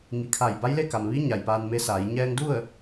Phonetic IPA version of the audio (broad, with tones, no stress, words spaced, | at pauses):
ŋi˩˧kʰa˧˩j ba˧˥jle˥˨ka˩mʋi˧˥ ɲa˩jpaː˧nme˧˥saː˩˧j ɲɛː˧ŋdu˥˨ə̯